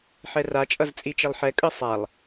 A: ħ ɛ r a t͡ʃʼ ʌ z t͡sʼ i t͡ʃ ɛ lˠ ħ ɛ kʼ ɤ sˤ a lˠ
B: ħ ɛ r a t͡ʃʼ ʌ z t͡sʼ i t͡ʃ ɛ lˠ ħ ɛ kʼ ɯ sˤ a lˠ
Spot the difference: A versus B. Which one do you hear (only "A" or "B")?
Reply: B